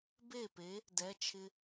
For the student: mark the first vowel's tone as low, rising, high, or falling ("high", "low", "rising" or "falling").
falling